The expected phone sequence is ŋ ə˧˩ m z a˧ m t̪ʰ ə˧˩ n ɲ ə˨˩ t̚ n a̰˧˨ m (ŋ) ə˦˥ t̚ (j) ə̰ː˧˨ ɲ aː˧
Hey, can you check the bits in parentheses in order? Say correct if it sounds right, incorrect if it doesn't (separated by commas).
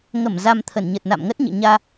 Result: correct, incorrect